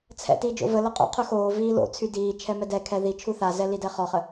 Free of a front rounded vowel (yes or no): no